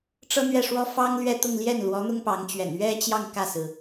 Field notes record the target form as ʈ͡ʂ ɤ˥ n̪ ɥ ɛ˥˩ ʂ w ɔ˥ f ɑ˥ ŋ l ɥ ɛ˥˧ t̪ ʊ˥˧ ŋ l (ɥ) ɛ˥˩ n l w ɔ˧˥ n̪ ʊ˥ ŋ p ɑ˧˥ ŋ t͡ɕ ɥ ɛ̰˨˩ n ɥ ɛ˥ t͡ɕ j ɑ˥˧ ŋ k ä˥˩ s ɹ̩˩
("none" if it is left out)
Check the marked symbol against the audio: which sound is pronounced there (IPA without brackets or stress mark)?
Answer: j